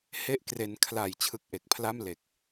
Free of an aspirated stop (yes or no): no